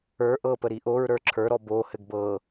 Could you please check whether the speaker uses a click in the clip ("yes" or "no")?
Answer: yes